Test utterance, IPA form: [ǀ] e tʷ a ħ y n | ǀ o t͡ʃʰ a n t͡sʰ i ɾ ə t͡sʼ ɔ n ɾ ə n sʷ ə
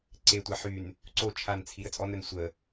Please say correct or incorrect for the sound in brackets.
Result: correct